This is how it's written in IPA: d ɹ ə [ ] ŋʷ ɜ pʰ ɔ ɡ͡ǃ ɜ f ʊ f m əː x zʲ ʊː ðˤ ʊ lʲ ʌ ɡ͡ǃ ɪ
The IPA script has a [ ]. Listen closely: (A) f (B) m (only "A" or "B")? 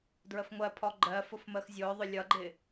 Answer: A